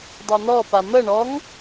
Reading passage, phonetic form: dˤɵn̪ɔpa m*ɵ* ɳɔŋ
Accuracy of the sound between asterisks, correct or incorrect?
incorrect